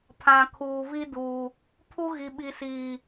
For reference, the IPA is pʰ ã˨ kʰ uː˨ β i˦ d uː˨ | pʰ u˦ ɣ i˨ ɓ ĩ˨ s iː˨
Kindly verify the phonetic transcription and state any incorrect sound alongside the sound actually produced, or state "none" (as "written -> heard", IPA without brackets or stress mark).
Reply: ĩ˨ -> i˨